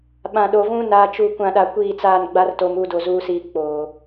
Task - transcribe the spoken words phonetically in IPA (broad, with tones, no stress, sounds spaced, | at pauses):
ɓ ã˨ ɗ o˨ v ũ˦ n a˨ t͡ʃ u˨ kʷ ã˨ ɗ a˨ kʷ iː˦˨ t͡s aː˦˨ n ɡ͡b a˦ r t o˨ m u˦˨ d o˨ z uː˦ s iː˦ k͡p oː˨